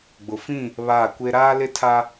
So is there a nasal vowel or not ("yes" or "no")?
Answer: yes